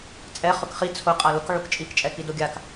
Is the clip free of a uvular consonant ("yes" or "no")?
no